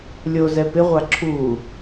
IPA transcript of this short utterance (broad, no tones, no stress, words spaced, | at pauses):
lʲozɛ pɪʁʷa ǁʰu